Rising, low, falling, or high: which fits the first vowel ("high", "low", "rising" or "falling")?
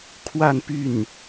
falling